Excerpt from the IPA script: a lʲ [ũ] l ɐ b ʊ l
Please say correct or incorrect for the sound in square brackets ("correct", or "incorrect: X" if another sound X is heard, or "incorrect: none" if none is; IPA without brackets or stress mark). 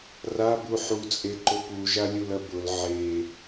incorrect: u